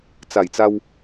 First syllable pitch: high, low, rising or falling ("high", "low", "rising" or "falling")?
low